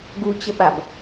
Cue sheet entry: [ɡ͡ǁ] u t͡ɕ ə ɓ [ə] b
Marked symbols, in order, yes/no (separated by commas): no, no